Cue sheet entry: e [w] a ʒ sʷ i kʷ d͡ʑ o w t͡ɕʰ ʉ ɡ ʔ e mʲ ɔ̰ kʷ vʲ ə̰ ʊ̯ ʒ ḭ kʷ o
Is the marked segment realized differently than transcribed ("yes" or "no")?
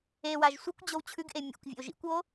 no